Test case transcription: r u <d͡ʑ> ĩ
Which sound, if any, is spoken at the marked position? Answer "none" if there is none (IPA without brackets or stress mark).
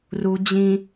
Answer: d͡ʑ